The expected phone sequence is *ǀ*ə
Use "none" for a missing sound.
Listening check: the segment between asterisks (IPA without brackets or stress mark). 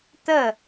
t̪